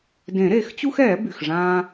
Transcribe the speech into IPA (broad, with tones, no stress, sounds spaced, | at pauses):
d ẽ˨˩˦ ɾ e˨˩˦ x t͡ɕ u˦ x ɛː˨˩˦ b y˩ x ʐ ãː˦